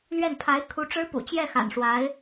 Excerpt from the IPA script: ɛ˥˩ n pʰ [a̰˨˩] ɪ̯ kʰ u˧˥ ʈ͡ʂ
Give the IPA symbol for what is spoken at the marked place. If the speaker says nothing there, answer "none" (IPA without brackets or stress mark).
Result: a˧˥